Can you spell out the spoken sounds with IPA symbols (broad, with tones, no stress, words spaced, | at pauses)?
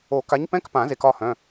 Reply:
o˨˩˦ka˨˥ɲpɛ̃˧˥˧kpã˨˩˦ ze˨˥kɒ˧˥˧hœ̃˧˥˧